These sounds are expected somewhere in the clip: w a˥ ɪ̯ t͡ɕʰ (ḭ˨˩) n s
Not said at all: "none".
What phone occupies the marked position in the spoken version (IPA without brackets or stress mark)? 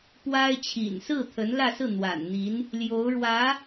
ḭ˨˩